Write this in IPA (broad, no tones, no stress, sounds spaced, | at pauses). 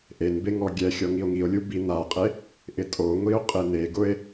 ʔ e n b e ŋ ɔ ɡʲ ɛ xʲ ɔ ŋ i o̯ ŋ i o̯ lʲ u b i n a qʼ e | ʔ ɪ tʼ o ŋʷ i o̯ qʼ e n e ɡ ʊ e̯